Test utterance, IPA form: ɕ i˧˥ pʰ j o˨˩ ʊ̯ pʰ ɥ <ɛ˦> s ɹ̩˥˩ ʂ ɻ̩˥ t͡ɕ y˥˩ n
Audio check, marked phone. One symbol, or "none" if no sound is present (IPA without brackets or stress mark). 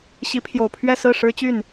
ɛ˥˧